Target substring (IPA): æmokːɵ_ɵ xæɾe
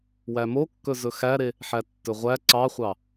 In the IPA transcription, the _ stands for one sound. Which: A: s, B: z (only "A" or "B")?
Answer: B